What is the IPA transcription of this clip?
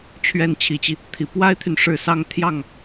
t͡ɕʰɥɛ˥˩nt͡ɕʰi˧˥t͡ɕi˧ | t̪ʰi˨˩pwa˥ɪ̯t̪ʰy˨n ʂɻ̩˥˩sɑ˥ŋt̪ʰjɑ˥˩ŋ

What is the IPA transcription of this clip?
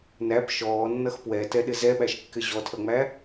næp ʃɔːnːʌx pwɛtɛɗɪ zɛɓæʃkːɪ ʑɔtʰʌŋ͡mæ

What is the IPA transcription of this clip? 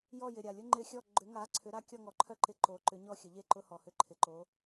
jɔ˥˨jɪ˨˩ ɾʲa˨˩lʲʊ˦ ŋ͡ǃɪ˦xʲɔ˥˨ ɡ͡ǃʏ˨˥ŋa˨˥ ǀʰʏ˨˥ɾa˥˨ kʲɔ˥˨ŋɔ˨˥ǃʰœ˦ǃɪ˨˥ ǃo˨˥ǃʏ˨˥ɲɔ˥˨ xʲə˨˩˦ʎe˥˨ ǃʊ˦hɔ˨˩hʏ˦ ǃʰɪ˨˩ǃo˨˥

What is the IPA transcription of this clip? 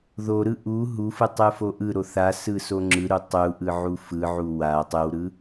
ðoɾɯ ʔu ɦufɯtˤɯfo ʔɯɾoθ asɯso ŋ͡ǁɯɾu tˤuʔɯʕu fɯʕu wa tˤɯwɾɯ

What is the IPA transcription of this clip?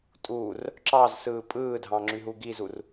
tʼur | ǁɑzsɯː pʼɯːdʱɑ̃ŋ͡ǁyɦu ɡizur

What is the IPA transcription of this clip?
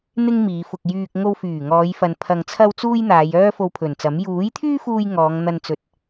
n̪ɪ˥ŋmiː˨˧fʊ˧k̚ jyː˧k̚ ŋo˧wfyː˨˩ŋɔː˨˧jfɐ˨n pʰɐ˧ŋt͡sʰɐ˥wt͡suː˥j n̪aː˨˧jœː˥ fo˧wpʰɵ˨˩nt͡sɐ˨˥m juː˨˥jt̪ʰyː˥fuː˧j ŋɔː˨˧ŋn̪ɐ˧nt͡sɵ˨˥t̚

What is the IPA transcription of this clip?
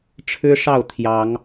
ʈ͡ʂʰɻ̩˦ʂɑ˥˨ʊ̯ t̪ʰjɑ˨˦ŋ

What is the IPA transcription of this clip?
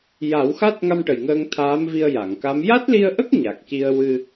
ja˨˩˦wxa˦˥t̚ ŋa˧mʈə˨˩j ŋəː˧ŋt̪ʰaː˧˥mvi˧ə̯ ja˨˩˨ŋka˧˥m ja˦˥t̚li˧ə̯ʔə˦˥k̚ ɲa˨˩k̚ci˧ə̯ wɨ˧

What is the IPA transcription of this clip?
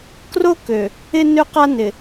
kro˦kø˨ | ɪ˦ nø˦qa˦ nɪ˨

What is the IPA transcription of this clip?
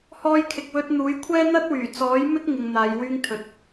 hɔː˧jkʰɪ˨k̚wɵ˧t̚n̪uː˨˥j kʷʰɛː˥n̪ɐ˥t̚wyː˨˩ t͡sɔː˨˥jmɪ˥k̚ ŋɪ˧ŋn̪aː˨˧jwyː˥ŋt̪ʰɵ˧t̚

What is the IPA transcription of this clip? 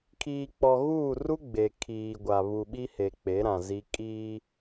kʰiː˨k͡pɔ˨ɣuː˦˨ ru˦ ɡ͡be˨kʰiː˨ɡʷa˨ βu˨ɓi˦he˨ k͡pe˨˦ɾã˨zi˦ kʼiː˦

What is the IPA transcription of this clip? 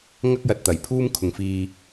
ŋɐ˥k̚jɐ˨t̚t̪ɐ˨˩j pʰuː˥m kʰʊ˨ŋfiː˧

